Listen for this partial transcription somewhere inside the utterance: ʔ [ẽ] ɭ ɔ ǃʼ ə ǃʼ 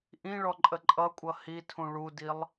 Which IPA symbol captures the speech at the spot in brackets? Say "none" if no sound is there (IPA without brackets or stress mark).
ĩ